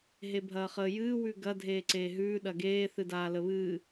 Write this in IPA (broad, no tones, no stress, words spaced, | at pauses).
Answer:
ɦebʱɐːχəːjɨː wʉɡɐ dʱeːǀeːɦʉː ɗɐɡeː θɨdaːləβɨː